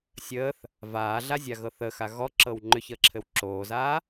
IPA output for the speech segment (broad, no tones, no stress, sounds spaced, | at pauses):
sʲ əː θ | v aː ɮ a zʲ a ɣ ɤ θ ə x a ɣ ɔ ǁ ɤ w ŋ͡ǃ ʏ ç əː ǁʰ ɘ w ǁ oː z aː